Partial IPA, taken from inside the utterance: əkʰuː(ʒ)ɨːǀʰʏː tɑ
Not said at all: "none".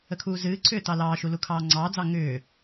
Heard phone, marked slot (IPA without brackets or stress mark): z